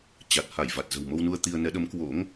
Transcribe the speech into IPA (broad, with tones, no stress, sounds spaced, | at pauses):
t͡ɕ a˨˩ t̚ h a˧˩ j v a˨˩ t̚ z ə̤˨˩ w m o˧ w n u˧ ə̯ t̪ i˧ ə̯ n ɛ˨˦ ɗ ə˨˦ m k w o̰˧˥ ŋ